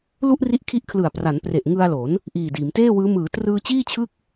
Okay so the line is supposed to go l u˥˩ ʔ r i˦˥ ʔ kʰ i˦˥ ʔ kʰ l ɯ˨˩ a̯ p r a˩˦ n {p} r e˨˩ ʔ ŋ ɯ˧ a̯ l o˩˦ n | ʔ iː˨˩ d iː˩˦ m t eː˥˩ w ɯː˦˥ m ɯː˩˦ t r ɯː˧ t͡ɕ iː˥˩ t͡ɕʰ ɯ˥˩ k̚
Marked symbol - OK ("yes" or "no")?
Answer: yes